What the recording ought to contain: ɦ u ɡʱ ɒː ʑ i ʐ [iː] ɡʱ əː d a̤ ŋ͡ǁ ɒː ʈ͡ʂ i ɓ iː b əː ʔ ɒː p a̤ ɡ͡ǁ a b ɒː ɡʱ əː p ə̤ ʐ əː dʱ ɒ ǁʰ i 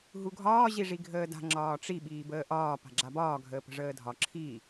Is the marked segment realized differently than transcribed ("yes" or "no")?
yes